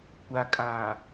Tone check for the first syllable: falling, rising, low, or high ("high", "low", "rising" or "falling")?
low